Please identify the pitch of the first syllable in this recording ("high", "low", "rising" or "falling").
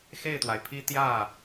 falling